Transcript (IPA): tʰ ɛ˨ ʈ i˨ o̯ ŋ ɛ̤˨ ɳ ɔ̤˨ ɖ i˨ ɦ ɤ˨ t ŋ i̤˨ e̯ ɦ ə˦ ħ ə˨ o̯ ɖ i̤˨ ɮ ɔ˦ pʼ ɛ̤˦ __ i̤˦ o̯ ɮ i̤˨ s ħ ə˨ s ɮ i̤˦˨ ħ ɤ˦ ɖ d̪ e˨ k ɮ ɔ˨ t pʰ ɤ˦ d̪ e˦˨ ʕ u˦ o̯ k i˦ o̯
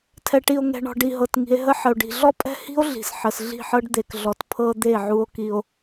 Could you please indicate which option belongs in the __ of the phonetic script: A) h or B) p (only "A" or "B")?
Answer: A